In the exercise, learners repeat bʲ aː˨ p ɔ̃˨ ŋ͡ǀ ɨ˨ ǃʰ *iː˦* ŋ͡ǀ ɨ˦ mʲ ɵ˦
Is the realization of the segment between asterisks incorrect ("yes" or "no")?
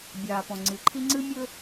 yes